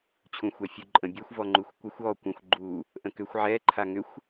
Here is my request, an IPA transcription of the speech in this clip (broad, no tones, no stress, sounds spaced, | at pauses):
t͡ɕʰ ũ xʷ ɛ fʲ u ǃʼ ə̃ bʲ ɛ xʷ v ɔ ŋ͡ǃ u xʷ kʷ ə xʷ ɔ kʷ ə̃ xʷ ɡ͡ǃ u | ʔ ə̃ k ʏ xʷ ʕ ɛ ǃʰ a ŋ ʏ xʷ